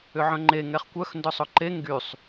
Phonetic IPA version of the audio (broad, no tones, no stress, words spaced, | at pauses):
ʏʕœ̃ŋ͡ǃe ŋɛχkʷœx ndœsˤʊǃe ŋɡysˤ